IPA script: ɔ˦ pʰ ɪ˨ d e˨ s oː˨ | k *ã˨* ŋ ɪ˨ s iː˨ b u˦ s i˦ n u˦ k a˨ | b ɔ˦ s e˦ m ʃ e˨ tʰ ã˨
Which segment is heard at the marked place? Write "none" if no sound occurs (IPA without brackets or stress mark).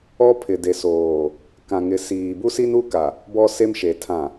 ã˨